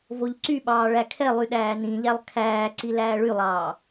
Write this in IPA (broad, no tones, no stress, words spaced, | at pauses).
voʎǀyɓɑː ɭækʰɛlˠy ɗæːnĩʎælˠ kʰæːǀi læːɭylˠɑː